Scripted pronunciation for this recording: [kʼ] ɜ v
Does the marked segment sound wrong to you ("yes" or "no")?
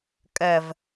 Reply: no